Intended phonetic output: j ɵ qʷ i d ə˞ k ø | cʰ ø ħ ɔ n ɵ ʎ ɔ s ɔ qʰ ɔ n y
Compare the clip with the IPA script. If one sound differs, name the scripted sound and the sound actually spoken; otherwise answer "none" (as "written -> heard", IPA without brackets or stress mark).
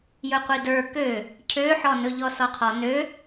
y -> ø